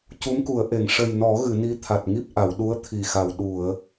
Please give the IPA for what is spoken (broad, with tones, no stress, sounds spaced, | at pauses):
c u˧˥ m k u˨˩˦ ə̯ ʔ e˨˩˨ ŋ ʂ ə˨˩ j n ɔ˨˩˦ ɣ ɨ˨˩˨ n i˧˥ t̪ʰ a˨˩ t̚ ŋ i˦˥ p̚ ʔ a˨˩˨ w ɗ u˧˥ ə̯ t̪ʰ i˨˩ x a˨˩ w ɗ u˨˩˨ ə̯